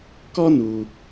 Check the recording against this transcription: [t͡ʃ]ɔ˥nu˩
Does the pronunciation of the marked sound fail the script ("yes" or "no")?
yes